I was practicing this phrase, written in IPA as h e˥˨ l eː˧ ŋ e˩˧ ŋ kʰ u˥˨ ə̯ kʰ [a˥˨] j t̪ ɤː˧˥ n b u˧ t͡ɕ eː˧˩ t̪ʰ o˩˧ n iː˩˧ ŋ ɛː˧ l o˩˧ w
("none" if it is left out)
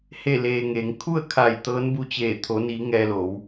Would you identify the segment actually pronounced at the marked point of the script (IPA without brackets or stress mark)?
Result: a˧˩